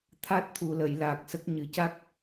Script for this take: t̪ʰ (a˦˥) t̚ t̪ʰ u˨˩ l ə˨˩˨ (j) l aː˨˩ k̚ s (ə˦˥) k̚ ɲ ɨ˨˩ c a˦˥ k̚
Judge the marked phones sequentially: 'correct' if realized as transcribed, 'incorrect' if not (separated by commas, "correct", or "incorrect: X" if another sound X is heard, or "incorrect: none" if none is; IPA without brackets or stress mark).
correct, correct, correct